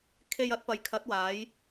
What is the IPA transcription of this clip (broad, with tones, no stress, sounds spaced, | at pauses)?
kʰ e˧ j ɐ˨˥ t̚ p ɐ˨˧ j kʰ ɐ˨˥ t̚ w aː˨˧ j